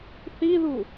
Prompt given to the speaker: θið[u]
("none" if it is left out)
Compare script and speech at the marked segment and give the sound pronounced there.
u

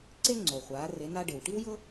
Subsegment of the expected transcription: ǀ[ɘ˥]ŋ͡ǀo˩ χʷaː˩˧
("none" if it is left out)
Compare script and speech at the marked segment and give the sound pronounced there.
e˥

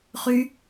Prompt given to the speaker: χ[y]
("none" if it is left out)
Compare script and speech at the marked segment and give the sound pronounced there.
y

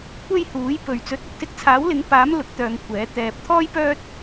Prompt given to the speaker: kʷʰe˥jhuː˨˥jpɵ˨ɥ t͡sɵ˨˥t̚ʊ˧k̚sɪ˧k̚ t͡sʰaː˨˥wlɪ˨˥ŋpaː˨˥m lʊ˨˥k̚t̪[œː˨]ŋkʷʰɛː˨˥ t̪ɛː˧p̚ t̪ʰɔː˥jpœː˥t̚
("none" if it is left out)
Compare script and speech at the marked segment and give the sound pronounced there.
œː˨˧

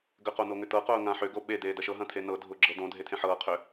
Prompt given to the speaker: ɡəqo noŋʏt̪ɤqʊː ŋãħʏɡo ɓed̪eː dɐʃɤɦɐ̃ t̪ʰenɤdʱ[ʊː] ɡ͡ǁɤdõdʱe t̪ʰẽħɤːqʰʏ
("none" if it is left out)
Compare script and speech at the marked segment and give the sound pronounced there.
ʊː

